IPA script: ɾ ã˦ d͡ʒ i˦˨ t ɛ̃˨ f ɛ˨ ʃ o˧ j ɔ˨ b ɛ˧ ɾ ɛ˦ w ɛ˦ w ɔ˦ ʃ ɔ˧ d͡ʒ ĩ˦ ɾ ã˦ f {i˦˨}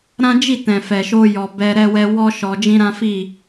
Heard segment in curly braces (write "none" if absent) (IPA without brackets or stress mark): i˦˨